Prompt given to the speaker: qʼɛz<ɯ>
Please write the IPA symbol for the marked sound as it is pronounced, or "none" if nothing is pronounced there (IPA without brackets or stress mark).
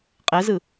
ɯ